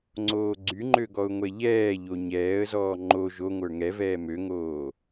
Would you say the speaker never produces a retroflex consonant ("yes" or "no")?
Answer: yes